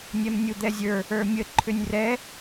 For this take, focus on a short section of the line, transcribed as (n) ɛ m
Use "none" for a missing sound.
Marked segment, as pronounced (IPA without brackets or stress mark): nʲ